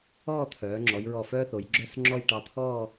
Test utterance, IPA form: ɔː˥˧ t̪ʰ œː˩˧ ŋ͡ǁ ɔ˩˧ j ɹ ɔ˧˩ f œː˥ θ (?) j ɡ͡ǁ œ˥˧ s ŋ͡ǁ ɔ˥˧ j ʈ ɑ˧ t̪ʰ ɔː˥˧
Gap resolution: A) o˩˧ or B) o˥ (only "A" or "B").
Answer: A